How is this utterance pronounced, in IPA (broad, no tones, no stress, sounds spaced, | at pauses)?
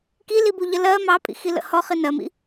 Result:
k i l i b u ʎ ə l ɜ m ɑ pʼ ḭ x i l ə̰ h ɔ χ i n ɜ m ḭ